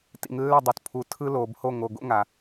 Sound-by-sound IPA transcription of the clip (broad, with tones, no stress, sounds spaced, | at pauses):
t ḭ˨ ŋ lː ɛ˦˨ dˤ u˨ t pʰ u˨ tʰ ɯ˦ l oː˨ b h o˦˨ ŋ o˨ ɡ o̰˦ ŋ a˨